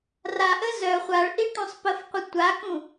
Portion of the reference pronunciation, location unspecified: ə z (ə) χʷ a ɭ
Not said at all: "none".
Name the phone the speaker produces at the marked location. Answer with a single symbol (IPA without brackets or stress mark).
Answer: œ